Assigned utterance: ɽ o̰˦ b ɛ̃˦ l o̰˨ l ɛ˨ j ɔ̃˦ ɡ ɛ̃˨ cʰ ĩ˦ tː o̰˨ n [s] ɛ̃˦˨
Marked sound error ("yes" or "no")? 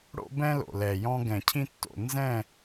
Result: yes